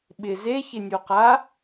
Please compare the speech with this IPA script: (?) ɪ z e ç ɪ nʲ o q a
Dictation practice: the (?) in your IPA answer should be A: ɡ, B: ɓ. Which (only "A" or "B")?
B